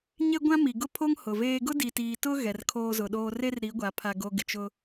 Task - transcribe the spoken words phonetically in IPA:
ɲe˦ɡʷã˦ mi˨ ɡʊ˦pʰo˦ŋ hʊ˨veː˦ ɡʊ˦di˨tiː˨tʊ˦ ɣɛ˨rkʰoː˦zʊ˨ɗoː˦ re˦rɾi˨˦ɡʷa˨ pʰa˨ɡo˨ ɡɪ˨t͡ʃʊ˦

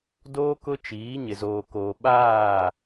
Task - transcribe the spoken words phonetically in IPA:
doː˦ kʊ˦t͡ʃiː˨˦ ɲɪ˨zoː˨koː˨ ɓaː˦˨

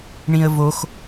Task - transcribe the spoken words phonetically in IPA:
ɳĩə̯vox

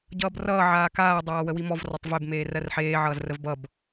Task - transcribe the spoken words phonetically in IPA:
ɟʌːbrʌː ʕaːkaː dˤaːwəwimɔv rɔtˤveb meːrɜrħeː ʕʌːzrəvbʌb

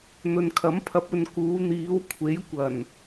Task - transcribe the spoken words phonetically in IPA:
n̪ɵ˨nkʰɐ˨˥mpʰɐ˨˥p̚ ɵ˨nkuː˨˧ n̪iː˨˧wkʷʰe˨˥jkʷɐ˨˩n

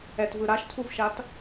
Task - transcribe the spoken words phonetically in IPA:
ɛtvɯ ɾaʃtʰuvʃat

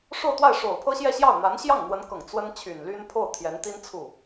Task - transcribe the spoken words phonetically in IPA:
ʂo˥˧ʊ̯t̪wa˥˩ɪ̯ ʂo˨˩ʊ̯pʰɤ˥ɕjɛ˥˧ɕjɑ˥˩ʊ̯ n̪a˧˥nɕjɑ˥˩ŋn̪wə˧˥nkɤ˨˩ŋ t͡swə˥nt͡ɕʰy˨˩nly˥n pʰo˥˩ʊ̯t̪ʰjɛ˧˥nt̪i˥n t͡sʰu˥˩

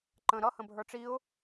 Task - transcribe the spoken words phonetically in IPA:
ǃə̃ ɾʌ hə̃bʱə˞ʈ͡ʂiʊ̯

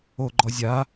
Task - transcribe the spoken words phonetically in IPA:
o ɡ͡ǃɔzʲa

